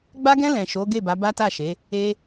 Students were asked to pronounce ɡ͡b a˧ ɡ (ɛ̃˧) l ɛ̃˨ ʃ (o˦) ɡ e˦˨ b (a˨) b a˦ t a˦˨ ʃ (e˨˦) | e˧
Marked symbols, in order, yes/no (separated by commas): yes, no, no, yes